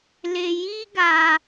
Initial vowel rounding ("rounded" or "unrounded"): unrounded